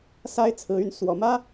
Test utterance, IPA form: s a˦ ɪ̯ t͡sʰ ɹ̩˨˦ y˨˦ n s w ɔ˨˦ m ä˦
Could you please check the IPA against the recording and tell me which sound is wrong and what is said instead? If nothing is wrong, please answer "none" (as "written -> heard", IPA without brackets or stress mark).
none